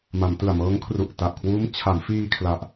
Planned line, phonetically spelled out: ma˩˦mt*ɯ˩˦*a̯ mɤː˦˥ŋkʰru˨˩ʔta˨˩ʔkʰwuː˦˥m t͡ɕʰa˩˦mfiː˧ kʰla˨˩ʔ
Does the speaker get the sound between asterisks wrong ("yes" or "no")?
yes